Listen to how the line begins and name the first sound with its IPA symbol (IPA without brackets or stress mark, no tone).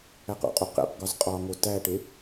æ